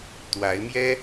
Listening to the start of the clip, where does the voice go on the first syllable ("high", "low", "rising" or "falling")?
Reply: rising